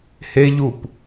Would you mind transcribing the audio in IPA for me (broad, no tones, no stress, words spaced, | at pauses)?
heʎup